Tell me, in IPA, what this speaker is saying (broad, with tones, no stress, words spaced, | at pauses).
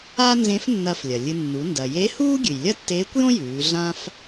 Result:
a˥nzẽ˧˥f nːɐ˧f lʲɐ˩lʲɨ˧ nːu˩˧ ndɐ˩je˧˥huː˥ ɡʲɨ˩jlʲɐ˥tːeː˧˥kʷjõ˥ jʉː˩˧ɮã˥f